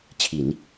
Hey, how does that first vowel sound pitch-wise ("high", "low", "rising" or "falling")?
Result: low